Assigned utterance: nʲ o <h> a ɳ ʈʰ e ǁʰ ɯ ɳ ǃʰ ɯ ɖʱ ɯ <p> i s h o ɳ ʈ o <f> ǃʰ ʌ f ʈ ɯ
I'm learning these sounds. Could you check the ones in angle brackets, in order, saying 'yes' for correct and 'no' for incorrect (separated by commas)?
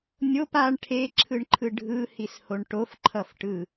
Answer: no, no, yes